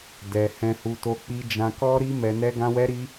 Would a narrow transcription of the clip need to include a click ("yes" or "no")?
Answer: no